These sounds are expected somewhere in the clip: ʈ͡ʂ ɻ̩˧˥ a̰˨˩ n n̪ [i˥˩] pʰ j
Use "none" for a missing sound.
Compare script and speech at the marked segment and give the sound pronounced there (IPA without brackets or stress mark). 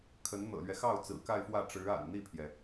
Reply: i˥˩